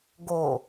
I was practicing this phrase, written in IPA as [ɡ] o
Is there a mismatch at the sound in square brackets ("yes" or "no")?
no